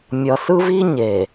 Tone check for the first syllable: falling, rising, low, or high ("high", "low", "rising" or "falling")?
low